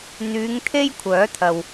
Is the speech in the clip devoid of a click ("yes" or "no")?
yes